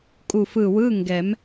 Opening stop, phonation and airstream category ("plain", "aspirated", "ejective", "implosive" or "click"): ejective